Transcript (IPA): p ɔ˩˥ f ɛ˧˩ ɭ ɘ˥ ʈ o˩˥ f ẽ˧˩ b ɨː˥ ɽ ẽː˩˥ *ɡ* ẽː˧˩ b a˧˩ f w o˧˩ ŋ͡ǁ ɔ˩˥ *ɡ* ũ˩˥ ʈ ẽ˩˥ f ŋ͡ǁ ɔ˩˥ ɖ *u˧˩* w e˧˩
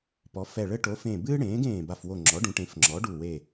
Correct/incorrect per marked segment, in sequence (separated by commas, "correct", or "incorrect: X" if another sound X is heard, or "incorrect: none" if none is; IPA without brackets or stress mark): correct, incorrect: ɖ, correct